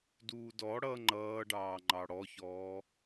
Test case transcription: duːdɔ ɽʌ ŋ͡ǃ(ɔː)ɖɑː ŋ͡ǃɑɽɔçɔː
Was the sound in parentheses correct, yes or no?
no